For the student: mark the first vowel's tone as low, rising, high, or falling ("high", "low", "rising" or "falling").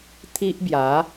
high